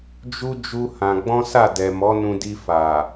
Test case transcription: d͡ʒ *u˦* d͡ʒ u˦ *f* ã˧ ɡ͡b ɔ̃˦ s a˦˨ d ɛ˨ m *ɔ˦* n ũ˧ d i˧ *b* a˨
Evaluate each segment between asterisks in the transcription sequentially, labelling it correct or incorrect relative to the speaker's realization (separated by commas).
correct, incorrect, incorrect, incorrect